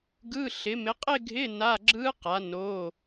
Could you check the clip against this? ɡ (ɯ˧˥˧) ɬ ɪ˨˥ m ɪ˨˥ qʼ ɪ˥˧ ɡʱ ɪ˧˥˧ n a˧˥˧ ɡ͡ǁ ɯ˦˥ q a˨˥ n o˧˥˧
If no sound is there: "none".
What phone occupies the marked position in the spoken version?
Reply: ɯ˧˥˧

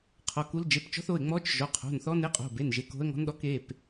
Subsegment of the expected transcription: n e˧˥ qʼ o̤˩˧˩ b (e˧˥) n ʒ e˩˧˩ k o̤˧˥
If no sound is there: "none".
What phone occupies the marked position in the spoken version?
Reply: e˩˧˩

